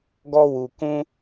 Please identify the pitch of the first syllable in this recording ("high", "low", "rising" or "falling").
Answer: high